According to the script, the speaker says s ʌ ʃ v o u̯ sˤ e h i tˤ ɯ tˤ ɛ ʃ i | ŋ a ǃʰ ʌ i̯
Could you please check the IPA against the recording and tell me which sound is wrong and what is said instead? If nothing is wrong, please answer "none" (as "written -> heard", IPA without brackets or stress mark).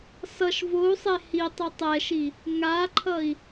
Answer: none